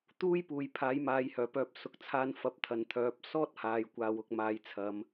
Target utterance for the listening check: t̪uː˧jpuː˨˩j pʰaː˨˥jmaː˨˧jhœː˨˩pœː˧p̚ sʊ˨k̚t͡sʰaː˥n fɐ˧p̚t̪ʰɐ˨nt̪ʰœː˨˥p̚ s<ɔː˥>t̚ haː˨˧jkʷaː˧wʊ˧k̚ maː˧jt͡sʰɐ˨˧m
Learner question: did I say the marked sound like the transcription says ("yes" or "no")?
yes